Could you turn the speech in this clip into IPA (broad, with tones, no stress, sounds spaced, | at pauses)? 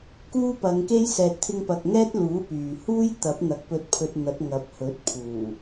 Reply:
k uː˥ p ɐ˨˧ ŋ k e˥ j s ɛː˨ t̚ t̪ʰ ɪ˧ ŋ p ɐ˨ k̚ ŋ ɛː˥ t̚ l uː˨˥ p yː˨ h uː˥ j t̪ ɐ˨˥ p̚ n̪ ɐ˨˥ k̚ p ɵ˧ t̚ pʰ ɵ˧ t̚ n̪ ɐ˨˥ t̚ ŋ ɐ˨˥ p̚ h ɵ˨˥ t̚ pʰ uː˨˩